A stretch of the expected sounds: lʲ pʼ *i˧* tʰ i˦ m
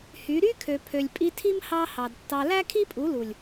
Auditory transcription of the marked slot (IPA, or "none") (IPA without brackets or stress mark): i˧